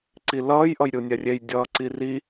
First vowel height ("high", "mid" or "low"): high